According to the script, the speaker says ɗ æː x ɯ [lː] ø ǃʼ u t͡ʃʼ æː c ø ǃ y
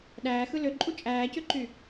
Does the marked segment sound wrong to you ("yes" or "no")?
yes